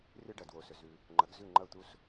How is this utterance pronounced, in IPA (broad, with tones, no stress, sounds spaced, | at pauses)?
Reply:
r ɨ˥ ɖ ɐ˩ d w o˩ s ɵ˩ z ʉ˩ | ŋ͡ǃ ɐ˩˥ ɡ z ʉ˥˩ ŋ͡ǃ ɐ˥˩ u̯ t̪ u˥ s